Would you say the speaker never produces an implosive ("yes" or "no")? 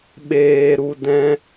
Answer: no